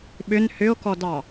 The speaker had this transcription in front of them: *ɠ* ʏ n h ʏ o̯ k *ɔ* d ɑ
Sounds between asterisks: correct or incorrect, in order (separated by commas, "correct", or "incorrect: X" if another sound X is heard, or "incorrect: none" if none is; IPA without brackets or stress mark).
incorrect: ɓ, correct